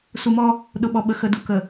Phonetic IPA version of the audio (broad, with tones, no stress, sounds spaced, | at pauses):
s u˨ m ɔ˦ | ɗ ʊ˨ ɓ ɔ˨ ɓ ə˨ x ə˨ d u˨ k ə˨